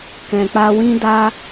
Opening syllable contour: low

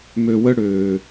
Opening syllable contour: low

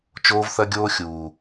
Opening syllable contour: high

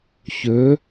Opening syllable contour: rising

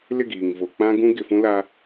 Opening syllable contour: falling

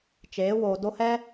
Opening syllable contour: rising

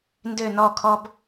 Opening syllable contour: falling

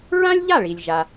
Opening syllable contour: high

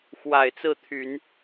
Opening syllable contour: low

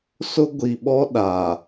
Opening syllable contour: high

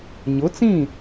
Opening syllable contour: rising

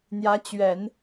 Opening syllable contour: rising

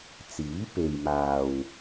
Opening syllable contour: rising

